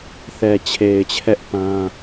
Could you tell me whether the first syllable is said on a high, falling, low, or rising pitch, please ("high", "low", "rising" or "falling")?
low